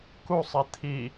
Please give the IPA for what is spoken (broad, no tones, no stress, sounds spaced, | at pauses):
k u sˤ ɛ t̪ʰ i